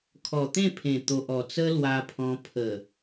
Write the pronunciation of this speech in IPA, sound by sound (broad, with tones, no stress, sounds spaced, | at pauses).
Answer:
kʰ ɔ˨˩ t̪ ẽ˥˧ pʰ ẽ˨˩ t̪ o˨ ʔ ɔ˨˩ t͡s ə˦ l w a˧ pʰ ɔ̃˧ pʰ ə˨˩